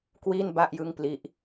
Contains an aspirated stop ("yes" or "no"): no